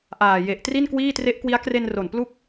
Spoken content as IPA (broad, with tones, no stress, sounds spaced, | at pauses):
ʔ aː˨˩ j e˨˩ ʔ t r i˥˩ n k w iː˥˩ t r e˦˥ ʔ k w i˦˥ a̯ k r e˧ n r o˨˩ n p l u˦˥ k̚